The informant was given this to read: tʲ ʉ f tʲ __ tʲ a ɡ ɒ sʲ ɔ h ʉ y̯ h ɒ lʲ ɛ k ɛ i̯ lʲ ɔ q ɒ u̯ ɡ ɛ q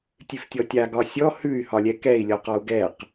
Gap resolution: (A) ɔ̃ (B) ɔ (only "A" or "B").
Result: B